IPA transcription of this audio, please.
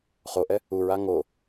χ o ʔ ɛ | u ɹ a ŋ o

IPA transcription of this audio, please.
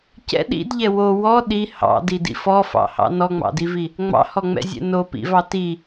c ɛ̰ ɗ ḭ d ʎ ɛ w o w ɔ ɗ i h ɑ̰ d i d ḭ f ɔ f ɑ̰ h ɑ̰ n ɔ ŋ͡m ɑ̰ d i v i | ŋ͡m ɑ̰ h ɔ ŋ͡m ɛ̰ zʲ ɛ̰ n o p ḭ v ɑ t i

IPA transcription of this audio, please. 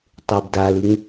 tˤ e b d a l ɯ ŋ

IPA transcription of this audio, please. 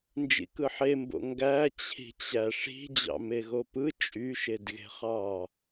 n d͡ʒ ḭ k ɯ ħ e m b o̰ ŋ ɡ æ t͡ɕʰ i̤ t͡ɕ æ ʂ i̤ d͡ʑ ɑ̰ m e ɣ o p ɯ t͡ʃʼ y ʃ e d ɣ e̤ χ ɑ

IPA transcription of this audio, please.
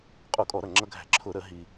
qʼ u˧˩˧ kʼ ɔ˧˩˧ ɾ ʌ˧˩ ŋ͡ǁ ʌ˧ ɡʱ æ̤˧˩˧ ǁʰ ʊ˧˩˧ ɾ ə˧˩˧ ɦ i˧

